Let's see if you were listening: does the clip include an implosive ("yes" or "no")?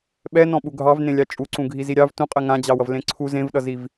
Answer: yes